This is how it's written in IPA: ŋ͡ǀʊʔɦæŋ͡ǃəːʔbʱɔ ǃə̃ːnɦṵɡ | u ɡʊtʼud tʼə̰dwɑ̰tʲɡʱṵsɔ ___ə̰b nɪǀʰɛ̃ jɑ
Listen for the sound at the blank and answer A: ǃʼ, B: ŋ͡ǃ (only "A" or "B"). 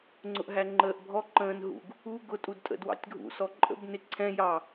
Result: A